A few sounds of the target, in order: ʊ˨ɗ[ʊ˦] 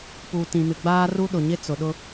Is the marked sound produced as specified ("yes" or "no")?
yes